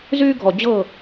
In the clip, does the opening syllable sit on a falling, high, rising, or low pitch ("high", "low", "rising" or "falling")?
high